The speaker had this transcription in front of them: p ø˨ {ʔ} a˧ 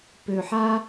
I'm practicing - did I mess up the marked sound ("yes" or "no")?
yes